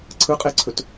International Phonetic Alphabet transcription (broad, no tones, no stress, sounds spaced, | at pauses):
ǀʰ ɯ qʼ e ǀʰ ɵ t